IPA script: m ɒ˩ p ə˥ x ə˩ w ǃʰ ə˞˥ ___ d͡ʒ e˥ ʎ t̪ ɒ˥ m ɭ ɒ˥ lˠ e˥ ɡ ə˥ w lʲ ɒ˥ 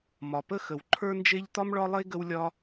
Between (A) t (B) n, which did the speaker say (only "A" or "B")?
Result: B